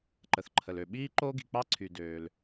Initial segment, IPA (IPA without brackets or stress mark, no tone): ǃ